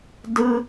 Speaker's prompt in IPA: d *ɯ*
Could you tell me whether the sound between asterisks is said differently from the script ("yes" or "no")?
no